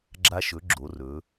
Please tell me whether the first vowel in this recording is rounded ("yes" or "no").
no